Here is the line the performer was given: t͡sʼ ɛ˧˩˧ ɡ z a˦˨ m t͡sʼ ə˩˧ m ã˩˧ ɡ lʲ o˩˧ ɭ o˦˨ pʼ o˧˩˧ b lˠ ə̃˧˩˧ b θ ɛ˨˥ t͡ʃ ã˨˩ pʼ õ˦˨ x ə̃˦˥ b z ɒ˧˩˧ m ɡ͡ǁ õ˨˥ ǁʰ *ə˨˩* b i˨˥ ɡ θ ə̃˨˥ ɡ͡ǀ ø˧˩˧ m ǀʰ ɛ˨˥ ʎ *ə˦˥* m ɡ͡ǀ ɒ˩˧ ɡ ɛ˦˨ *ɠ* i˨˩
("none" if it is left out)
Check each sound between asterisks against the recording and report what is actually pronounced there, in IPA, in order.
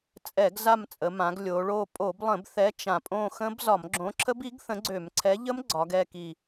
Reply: ə˦˥, ə˦˥, k

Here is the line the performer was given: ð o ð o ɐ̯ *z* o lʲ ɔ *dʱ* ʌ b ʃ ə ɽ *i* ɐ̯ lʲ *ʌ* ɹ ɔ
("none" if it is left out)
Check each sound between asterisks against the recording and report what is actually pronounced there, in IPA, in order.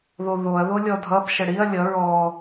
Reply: ð, dʱ, i, ʌ

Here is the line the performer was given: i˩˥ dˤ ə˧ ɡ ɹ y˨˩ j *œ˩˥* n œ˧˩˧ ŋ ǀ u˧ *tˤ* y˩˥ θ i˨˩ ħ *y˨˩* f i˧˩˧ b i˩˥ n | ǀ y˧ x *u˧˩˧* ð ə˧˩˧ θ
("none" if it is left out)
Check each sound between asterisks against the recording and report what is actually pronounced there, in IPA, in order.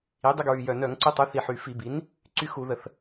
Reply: œ˨˩, tˤ, y˨˩, u˧˩˧

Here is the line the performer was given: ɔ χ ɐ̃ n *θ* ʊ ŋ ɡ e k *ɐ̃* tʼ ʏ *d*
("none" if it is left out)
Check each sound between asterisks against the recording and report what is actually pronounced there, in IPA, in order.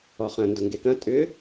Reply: d, ɐ̃, none

